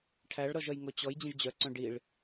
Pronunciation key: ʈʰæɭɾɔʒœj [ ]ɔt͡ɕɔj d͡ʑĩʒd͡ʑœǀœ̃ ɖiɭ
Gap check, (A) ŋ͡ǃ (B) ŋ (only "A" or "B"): B